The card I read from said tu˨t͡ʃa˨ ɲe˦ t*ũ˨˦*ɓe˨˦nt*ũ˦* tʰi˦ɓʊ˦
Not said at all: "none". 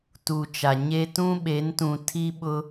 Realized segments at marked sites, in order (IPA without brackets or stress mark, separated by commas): ũ˦, ũ˨